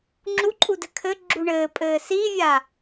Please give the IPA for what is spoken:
ŋ͡ǁuǃʼudɘ kʰɘɡ͡ǁu ɳɘːpʼɘː sivʲa

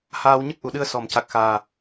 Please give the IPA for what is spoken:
haː˧wɲə˦˥k̚ʔu˨˩˨ɗɨ˧ə̯ sɔ˨˩˨mca˨˩k̚xaː˨˩

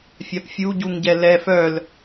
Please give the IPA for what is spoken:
fʲapfʲu ɟuŋɟɛlɛ fœl

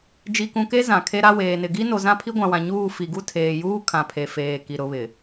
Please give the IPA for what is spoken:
d͡ʒi˨kũ˨ke˦ zã˨kʰe˦ɾa˦ weː˨nɪ˨ ɡi˦no˨ zã˦pʰi˦ɡʷã˨wã˨ ɲuː˦˨fi˨ɡu˦ tʰeː˨juː˦ kʰã˨pʰe˨feː˨ ki˨ɾʊ˨˦βɪ˨

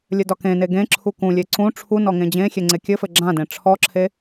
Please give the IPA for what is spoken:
lʲɘdɒkẽne ɡẽ ǁʰukũlʲe ǀũ ʈ͡ʂʰu nɔŋẽd͡ʑẽxʲe ŋ͡ǀekʲɘfɘ ɡ͡ǁãdẽ ʈ͡ʂʰɔǁʰe

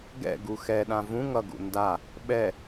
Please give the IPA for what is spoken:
ɡɛ̰ ɡuxɛɗã vũ ŋʌɡṵ nda | ɓɛ

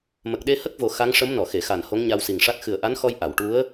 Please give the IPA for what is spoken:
mə˨˩k̚ɗe˧hə˦˥k̚vo˨˩ xa˧˥ŋʂə˧˥m nɔ˨˩˨xe˨˩˨xa˨˩n ho˧˥ŋɲa˧wsi˨˩ŋʂa˦˥t̚ xɨ˨˩ə̯ʔa˧˥nxɔ˧j ʔa˨˩˨wʈu˧˥ə̯

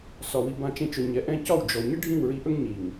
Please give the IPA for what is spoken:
sɒ˨wi˨ bã˧t͡ʃẽ˧t͡ʃɵ˨ ɲɛ˨ ʔɛ̃˧ cɒ˦˨w d͡ʒɔ˨ ɲə˦ɖʱĩ˦˨wɹi˧ʔɵ˦ŋ ɲi˨ŋ

